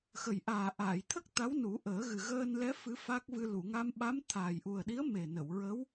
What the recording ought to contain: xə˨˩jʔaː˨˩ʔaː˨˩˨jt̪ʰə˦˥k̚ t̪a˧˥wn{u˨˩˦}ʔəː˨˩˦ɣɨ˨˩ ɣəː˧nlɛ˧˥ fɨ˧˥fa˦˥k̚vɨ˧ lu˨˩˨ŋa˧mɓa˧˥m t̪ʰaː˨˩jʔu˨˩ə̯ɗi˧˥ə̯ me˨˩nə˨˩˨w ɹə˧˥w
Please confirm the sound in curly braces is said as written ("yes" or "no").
yes